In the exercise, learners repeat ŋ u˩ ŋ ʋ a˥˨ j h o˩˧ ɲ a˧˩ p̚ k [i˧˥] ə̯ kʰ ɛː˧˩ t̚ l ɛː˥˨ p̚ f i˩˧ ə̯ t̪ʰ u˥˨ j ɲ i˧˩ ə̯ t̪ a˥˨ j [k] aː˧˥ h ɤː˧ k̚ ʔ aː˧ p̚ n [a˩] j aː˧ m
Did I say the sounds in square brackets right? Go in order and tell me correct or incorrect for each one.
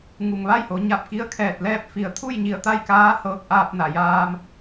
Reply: correct, correct, correct

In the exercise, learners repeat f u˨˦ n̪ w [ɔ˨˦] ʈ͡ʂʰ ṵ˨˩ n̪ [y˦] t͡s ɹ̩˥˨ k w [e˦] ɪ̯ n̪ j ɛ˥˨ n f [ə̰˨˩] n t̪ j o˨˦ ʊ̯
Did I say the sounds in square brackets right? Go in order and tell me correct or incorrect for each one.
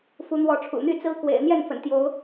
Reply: correct, correct, incorrect, correct

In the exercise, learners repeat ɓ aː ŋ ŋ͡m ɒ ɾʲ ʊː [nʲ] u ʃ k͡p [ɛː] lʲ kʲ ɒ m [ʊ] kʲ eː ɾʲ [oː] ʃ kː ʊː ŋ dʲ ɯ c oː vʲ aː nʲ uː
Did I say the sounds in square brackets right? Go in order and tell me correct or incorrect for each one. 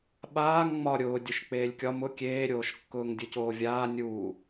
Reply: incorrect, incorrect, correct, correct

